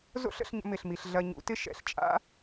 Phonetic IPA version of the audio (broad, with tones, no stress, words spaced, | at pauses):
zo̰˦ɬə̰˧ɬɲə̰˧ mɪ˨ɬmi˨ɬ ɮɐ˧ɲṵ˨˦tɪ˦ ʃɛ̰˨ɬt͡ʃʼa̰˦